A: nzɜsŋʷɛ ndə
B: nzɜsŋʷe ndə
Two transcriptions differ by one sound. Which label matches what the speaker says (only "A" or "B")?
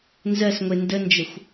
B